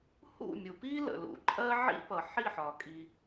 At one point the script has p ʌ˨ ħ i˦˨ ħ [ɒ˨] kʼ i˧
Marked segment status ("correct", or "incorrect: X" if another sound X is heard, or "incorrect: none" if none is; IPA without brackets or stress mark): correct